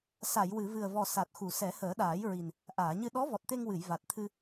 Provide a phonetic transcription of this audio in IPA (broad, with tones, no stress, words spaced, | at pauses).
sa˨˩˨jwɨ˨˩˨vɨ˨˩ə̯vɔ˨˩ sa˨˩t̚xu˨˩ sɛ˨˩˦həː˨˩˦ɗaː˨˩˦jɹi˨˩n | ʔaː˨˩˨ɲɨ˧ ɗɔ˧˥vɔ˨˩t̚t̪e˧ŋwɨ˨˩˨j va˨˩t̚t̪ʰɨ˧